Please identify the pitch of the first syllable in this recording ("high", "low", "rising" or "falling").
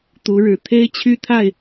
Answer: rising